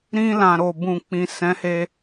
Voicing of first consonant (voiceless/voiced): voiced